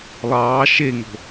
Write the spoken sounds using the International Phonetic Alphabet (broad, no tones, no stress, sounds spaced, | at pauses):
lˠ ɑː ʃ e ŋ o̤